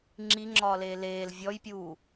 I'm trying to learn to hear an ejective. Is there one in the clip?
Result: no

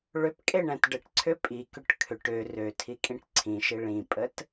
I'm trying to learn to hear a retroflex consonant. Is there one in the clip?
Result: yes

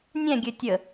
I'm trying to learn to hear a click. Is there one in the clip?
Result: no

